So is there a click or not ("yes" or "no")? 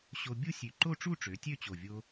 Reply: yes